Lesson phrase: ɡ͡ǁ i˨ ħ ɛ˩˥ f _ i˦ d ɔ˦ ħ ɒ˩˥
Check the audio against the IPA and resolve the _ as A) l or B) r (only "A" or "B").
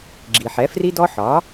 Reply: B